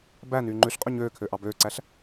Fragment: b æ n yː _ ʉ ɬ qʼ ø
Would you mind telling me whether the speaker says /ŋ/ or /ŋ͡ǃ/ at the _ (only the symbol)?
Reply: ŋ͡ǃ